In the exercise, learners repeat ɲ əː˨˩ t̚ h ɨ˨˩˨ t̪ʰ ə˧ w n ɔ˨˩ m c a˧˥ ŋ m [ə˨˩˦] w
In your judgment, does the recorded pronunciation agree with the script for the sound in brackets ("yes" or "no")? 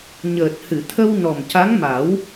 no